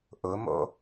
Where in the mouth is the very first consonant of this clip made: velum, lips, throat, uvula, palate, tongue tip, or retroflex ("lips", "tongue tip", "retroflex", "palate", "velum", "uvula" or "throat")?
throat